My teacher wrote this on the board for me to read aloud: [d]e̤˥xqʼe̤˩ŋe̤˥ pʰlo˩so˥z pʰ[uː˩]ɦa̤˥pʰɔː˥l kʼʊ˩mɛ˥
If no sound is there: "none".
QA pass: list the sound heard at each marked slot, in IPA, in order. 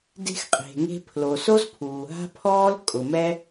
d, uː˩

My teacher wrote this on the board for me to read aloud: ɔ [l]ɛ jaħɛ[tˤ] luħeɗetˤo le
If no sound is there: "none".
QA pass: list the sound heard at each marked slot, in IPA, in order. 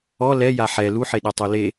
l, none

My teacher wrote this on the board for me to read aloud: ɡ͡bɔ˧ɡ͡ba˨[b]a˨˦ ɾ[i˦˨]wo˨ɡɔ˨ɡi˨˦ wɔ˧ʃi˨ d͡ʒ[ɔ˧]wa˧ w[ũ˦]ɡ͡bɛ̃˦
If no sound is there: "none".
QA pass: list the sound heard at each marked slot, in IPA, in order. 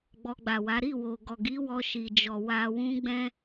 w, i˦˨, ɔ˨, ũ˦

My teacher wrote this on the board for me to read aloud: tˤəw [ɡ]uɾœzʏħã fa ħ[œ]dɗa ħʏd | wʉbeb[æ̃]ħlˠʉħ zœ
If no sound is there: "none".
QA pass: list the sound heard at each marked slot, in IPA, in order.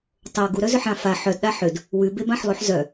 ɡ, œ, ã

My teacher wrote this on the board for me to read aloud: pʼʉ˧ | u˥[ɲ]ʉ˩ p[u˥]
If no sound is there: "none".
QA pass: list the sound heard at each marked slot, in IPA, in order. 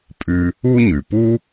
ɲ, u˥

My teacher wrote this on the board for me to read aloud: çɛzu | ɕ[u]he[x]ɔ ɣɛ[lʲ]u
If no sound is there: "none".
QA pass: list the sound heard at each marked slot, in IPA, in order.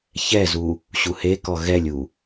u, k, lʲ

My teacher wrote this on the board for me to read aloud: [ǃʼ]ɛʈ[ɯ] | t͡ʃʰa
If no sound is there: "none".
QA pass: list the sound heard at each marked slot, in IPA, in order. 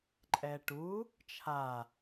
ǃʼ, u

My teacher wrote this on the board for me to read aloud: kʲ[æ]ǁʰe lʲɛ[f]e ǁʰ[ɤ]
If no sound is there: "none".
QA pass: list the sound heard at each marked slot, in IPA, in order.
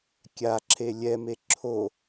a, m, o

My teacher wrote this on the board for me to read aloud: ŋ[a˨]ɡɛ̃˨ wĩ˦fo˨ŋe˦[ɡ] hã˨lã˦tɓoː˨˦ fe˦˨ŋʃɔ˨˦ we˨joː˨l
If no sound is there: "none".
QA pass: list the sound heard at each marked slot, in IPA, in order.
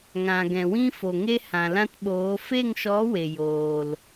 ã˨, none

